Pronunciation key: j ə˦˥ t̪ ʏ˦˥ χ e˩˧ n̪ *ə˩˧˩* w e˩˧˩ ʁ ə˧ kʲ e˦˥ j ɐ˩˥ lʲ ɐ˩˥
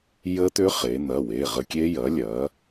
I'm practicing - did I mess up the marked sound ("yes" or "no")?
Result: yes